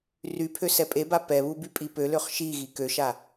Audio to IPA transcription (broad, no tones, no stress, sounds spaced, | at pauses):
r y pʰ ø s ɛ pʼ e b a p ɛ β u b y pʼ i p ø l ø χ ʃ i ɣ i k ø ʃ a